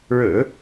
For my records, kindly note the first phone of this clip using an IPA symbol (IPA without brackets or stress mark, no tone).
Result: ɻ